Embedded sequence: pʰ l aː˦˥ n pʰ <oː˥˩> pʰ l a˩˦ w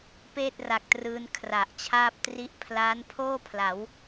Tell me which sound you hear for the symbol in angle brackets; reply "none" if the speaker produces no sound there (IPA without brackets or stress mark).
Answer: oː˥˩